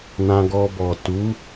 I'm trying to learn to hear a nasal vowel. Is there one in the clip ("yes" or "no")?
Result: yes